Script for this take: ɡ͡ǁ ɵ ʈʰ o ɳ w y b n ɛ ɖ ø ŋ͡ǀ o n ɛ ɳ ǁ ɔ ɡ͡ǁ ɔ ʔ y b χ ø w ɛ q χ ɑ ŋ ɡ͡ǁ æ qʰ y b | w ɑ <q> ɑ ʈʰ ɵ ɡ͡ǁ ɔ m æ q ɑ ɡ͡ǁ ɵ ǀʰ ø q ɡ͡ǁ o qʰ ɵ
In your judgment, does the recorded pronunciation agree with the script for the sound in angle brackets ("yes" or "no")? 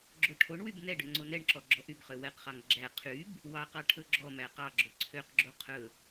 yes